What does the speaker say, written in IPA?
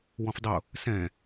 w ɔ̃ f dˤ ʊ | s ɛ̃

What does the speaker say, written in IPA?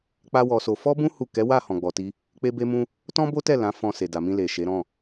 k͡p a˦ w ɔ˧ s o˧ f ɔ˦ b ũ˦ h u˦˨ k ɛ˨˦ w a˦˨ h ɔ̃˧ ɡ͡b ɔ˧ t i˦ | k͡p e˦ b e˦ m ũ˦ | t ɔ̃˦ b o˦ t ɛ˦˨ l ã˨˦ f ɔ̃˧ s e˨ d a˨ m ĩ˧ l e˨ ʃ e˨˦ ɾ ɔ̃˦˨

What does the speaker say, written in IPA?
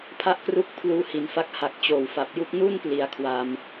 pʰ a˥˩ ʔ k r u˥˩ k̚ pʰ l uː˧ h i˩˦ n f a˦˥ k̚ h a˨˩ k̚ t͡ɕ oː˨˩ w f a˨˩ p̚ j u˥˩ k̚ n uː˥˩ n p l i˩˦ a̯ kʰ w a˧ m

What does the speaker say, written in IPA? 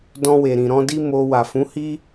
d ɔ̃˧ w e˨ ɾ ĩ˨ ɾ ɔ̃˧ d i˦ m o˧ w a˨ f ũ˨˦ h i˦

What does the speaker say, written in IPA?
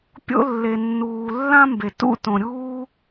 pʲ o̰˦ lː e˨ nː uː˨ lː ã˥ m b e˨ t ṵ˥ t õ˨ ɾʲ uː˥

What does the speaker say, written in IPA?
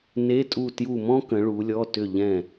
n e˧˥˧ tʼ u˦˨ t j u˦˨ m ɔ̃˥ k ə̃˨˦ ɭ u˨˦ lʲ ɔ˧˥˧ t ʏ˦˨ ʎ ɛ̃˦˨

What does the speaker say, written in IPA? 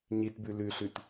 ɲ i t b ʉ l ʉ ɬ ʉ t

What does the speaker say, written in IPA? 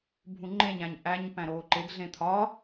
bʱ ũ ŋ͡ǃ ẽ ɲ æ̃ ɲ ʔ æ ɲ p æ̃ ɾ oː ǃ e ɡ ɮ ẽ t̪ʰ ɒ

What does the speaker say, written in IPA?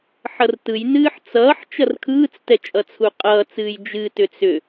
ħ ʌ r t ɯ j n ɨː ħ t͡s ʌː ħ t͡ʃ ʌ r kʰ ɯː t͡s t ɛ t͡ʃʼ ʌ t͡sʰ u qʼ ʌː t͡s ɨː j d͡ʒ ɨ t ʏ t͡s ʏ

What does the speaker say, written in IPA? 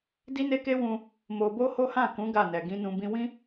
d i˦ n e˦ k e˦ w ũ˧ | m o˧ b o˦ h o˦ h ã˦˨ k ũ˨˦ ɡ a˦˨ n ɛ˨ ɡ ĩ˧ n ũ˧ b ĩ˧ w ĩ˦

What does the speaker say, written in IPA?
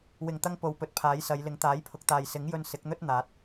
w ɪ˨˩ ŋ t̪ ɐ˧ ŋ p o˨˧ w p ɵ˨˥ t̚ pʰ aː˨˥ j s ɐ˨˧ j l ɪ˨˥ ŋ t̪ aː˨˥ j pʰ ʊ˨ k̚ t̪ aː˨ j s ɪ˨˥ ŋ j ɵ˧ n s ɪ˨˥ k̚ n̪ ɵ˥ t̚ n̪ aː˨˥ t̚

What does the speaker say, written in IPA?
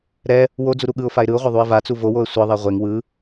ɾ ɛ | w o d͡z u ɾ u ɠ ɯ ʊ̯ f a ɪ̯ ɾ ɯ ʊ̯ ʁʷ a ðˤ u ɪ̯ v a t͡s u v o w o ə̯ sʷ ɤ ðˤ ɛ ʁʷ e ŋ w ɯ

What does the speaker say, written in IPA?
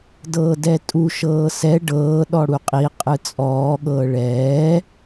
d ɤː d ɛ tʼ u ʃ ɤː s ɛ ɖ ɤː ɗ ɔ ɽ u qʼ i qʼ ɯ t͡sʼ ɔː ɠ ɤː ɭ ɛː

